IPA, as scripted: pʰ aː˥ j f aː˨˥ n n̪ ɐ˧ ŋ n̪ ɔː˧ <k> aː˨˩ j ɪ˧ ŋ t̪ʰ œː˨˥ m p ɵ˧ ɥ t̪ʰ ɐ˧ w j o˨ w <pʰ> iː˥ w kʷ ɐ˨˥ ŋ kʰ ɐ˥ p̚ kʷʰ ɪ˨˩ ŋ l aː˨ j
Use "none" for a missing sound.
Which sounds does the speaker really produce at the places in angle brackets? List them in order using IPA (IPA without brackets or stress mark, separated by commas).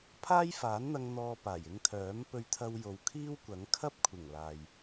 p, kʰ